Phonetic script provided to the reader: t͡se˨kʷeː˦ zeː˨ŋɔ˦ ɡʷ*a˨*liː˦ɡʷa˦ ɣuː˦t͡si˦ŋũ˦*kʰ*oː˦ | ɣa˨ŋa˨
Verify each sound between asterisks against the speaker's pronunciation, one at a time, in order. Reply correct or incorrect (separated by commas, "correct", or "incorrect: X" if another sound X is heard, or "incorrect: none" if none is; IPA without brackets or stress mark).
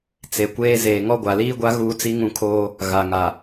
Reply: correct, correct